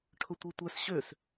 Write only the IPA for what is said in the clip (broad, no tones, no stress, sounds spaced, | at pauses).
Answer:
ʈʰ ʊ tʷ i tʷ ɛ s ɕ ø s